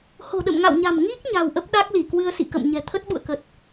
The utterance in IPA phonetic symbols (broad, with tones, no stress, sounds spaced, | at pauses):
h o̤˨˩ ɗ ə̰˧˨ m ŋ a̰˧˨ w ɲ a̤˨˩ m ŋ i˦˥ k̚ ɲ a̤˨˩ w ʔ ə˦˥ p̚ ɗ a˦˥ k̚ l i˧˩ k w ɨ˧ ə̯ s ḭ˧˨ k ə̰˧˨ m ɲ ɛ̤˨˩ t̪ʰ ə˦˥ t̚ ɓ ṵ˧˨ ə̯ k ə˨˩ t̚